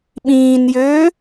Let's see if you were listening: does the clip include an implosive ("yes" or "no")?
yes